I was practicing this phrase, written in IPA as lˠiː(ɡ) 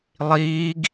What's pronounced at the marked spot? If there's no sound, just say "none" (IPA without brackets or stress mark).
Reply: ɡ